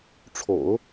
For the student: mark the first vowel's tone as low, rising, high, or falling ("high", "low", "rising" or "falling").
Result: low